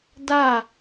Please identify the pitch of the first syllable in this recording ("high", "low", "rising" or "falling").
falling